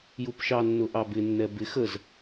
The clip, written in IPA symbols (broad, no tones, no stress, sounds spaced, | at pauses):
j u p ʃ ɑ nː ʊ ʔ ɑ b ɪ nː ɛ b ɪ x ə z